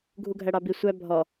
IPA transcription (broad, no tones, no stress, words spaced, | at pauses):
ɡʱuɡʱæɽɑbi sʷæ bʱɔ